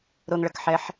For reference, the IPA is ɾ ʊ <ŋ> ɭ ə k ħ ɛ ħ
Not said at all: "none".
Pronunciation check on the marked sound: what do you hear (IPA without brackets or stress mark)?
ŋ